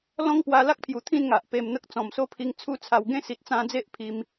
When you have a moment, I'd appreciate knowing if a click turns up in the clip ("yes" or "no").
no